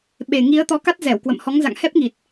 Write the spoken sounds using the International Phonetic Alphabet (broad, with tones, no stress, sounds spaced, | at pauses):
ɓ e˨˩ ŋ i˨˦ ə̯ t̪ ɔ˨˦ k a˦˥ t̚ z ɛ˧˩ w k w ə̰˧˨ m h ɔ˨˦ ŋ z a̰˧˨ ŋ h ɛ˦˥ p̚ ŋ i˨˩ t̚